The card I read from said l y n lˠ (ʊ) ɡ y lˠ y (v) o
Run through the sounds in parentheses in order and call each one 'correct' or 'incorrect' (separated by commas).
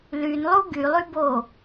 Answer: incorrect, incorrect